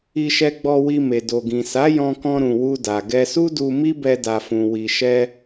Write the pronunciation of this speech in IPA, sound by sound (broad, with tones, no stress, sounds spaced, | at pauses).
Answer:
i˧ ʃ ɛ˧ ɡ͡b ɔ˧ w i˧ m e˨ d o˨ ɡ ĩ˨ s a˨˦ j ɔ̃˧ k ɔ̃˧ ɾ ũ˨ w u˧ d a˨ ɡ ɛ˧ s u˦ d u˧ m i˦ b ɛ˧ d a˨ f ũ˨ w i˨ ʃ ɛ˧